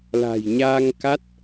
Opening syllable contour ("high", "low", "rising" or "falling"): low